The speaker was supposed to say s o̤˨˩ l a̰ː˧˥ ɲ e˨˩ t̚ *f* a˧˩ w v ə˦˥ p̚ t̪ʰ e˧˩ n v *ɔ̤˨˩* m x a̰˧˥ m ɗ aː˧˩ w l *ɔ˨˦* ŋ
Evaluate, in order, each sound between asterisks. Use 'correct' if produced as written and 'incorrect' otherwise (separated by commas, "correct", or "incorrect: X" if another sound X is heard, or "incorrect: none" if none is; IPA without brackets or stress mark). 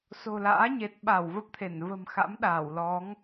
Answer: incorrect: ɓ, incorrect: ə̤˨˩, correct